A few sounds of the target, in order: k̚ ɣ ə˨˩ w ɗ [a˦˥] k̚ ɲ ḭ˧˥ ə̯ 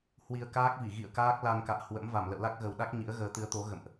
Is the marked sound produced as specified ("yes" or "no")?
yes